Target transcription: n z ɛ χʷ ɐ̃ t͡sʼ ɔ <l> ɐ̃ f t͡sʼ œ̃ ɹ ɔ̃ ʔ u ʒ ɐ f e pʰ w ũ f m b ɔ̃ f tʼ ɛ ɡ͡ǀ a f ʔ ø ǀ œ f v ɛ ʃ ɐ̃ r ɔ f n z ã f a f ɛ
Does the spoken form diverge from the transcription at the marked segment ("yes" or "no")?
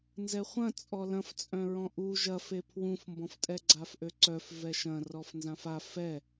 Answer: no